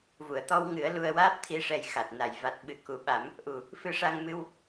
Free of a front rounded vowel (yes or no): yes